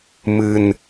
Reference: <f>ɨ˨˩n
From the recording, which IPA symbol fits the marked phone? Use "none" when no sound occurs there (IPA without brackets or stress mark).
m